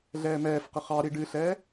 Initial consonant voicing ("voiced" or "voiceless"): voiced